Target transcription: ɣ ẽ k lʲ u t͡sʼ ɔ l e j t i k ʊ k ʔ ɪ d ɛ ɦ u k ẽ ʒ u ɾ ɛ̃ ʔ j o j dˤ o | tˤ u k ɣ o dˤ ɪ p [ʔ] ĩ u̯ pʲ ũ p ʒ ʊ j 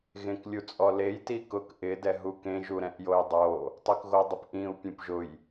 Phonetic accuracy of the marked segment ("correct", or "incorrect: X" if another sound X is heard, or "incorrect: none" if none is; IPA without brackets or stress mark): correct